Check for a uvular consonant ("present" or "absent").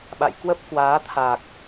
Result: absent